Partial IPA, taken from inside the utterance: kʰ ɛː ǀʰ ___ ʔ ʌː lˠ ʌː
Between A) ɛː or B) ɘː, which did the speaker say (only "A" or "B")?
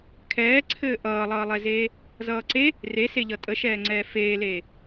B